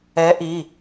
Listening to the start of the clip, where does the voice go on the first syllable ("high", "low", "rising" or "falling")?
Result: rising